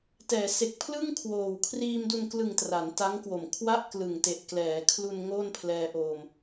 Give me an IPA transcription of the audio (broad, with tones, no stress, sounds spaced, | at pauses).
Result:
t ɛː˩˦ s e˨˩ k̚ pʰ l ɯ˥˩ ŋ kʰ w oː˨˩ w kʰ r iː˧ m d u˧ n k l ɯ˨˩ ŋ t r a˩˦ n t a˦˥ ŋ k w o˨˩ m kʰ w a˥˩ ʔ k l ɯ˨˩ ŋ t e˨˩ ʔ k l ɛː˩˦ kʰ l u˧ n ŋ oː˥˩ n pʰ l ɛː˧ ʔ o˧ m